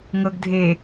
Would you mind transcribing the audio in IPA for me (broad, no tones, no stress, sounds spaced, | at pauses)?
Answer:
ŋ ɤ ɡ dʱ e